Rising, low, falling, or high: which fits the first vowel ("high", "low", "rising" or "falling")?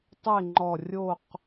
falling